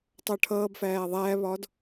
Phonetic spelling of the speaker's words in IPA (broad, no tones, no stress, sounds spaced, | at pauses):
tˤ ʌː ʈʰ ʌː b f æː ðˤ æː β ɒ d